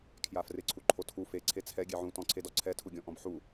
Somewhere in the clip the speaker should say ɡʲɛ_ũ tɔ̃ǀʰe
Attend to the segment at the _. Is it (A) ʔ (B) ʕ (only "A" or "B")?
B